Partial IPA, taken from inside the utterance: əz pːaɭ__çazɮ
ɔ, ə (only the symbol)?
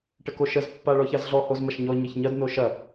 ɔ